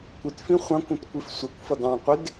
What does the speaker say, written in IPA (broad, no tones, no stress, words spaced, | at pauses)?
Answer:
kʷɪtfĩ χʷɑ̃kʷũtkʷif sʷʌkʷfʌd ɑ̃qʷɪd